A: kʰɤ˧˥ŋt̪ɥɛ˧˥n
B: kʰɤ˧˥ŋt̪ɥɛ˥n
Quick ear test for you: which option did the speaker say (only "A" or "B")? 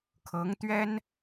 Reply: B